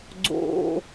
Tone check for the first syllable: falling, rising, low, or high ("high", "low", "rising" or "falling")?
low